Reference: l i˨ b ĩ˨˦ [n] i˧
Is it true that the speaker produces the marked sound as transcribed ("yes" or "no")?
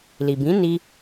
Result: yes